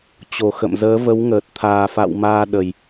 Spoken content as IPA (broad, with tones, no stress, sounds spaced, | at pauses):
t͡ɕ o˨˩ x ə̰˧˨ m z əː˨˦ v ə˨˦ w ŋ əː˨˩ t̚ t̪ʰ aː˨˩ f a̰˧˨ w m aː˧ ɗ ə˨˩ j